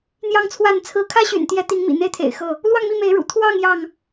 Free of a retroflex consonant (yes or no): no